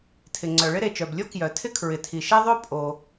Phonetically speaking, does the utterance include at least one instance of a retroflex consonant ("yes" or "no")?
yes